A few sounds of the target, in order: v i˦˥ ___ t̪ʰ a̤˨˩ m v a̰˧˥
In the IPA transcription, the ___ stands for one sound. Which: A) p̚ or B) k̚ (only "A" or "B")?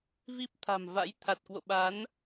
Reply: A